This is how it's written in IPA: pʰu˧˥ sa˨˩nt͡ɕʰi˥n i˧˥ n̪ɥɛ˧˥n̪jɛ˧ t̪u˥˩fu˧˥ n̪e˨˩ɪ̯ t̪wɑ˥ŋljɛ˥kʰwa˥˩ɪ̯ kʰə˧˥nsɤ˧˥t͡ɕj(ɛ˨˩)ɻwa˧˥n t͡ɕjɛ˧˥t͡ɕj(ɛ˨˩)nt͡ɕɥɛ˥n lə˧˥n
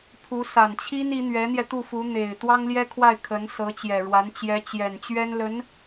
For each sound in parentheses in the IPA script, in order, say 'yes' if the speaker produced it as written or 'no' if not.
yes, yes

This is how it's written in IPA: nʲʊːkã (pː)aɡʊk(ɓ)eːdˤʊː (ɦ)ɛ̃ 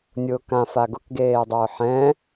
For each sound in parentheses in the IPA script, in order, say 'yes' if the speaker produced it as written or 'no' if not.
no, no, no

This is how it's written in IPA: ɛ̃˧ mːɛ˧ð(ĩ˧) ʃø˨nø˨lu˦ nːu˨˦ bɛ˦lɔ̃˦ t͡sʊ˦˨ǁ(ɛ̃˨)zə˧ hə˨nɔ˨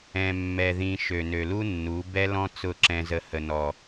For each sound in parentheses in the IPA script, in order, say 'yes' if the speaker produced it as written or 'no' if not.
yes, no

